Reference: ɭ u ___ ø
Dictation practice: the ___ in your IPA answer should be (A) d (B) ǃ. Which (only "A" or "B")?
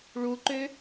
B